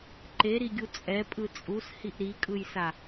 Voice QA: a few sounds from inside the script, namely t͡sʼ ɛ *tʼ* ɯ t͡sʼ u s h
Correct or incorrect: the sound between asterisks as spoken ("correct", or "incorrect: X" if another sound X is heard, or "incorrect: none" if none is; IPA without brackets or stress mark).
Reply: incorrect: pʼ